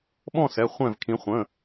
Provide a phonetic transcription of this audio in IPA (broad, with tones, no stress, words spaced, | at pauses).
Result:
ɓɔ̃˦˨sɛ˩˧˩ χʷɛ̃˦˨vkʰĩ˩˥ χʷə̃˩˧˩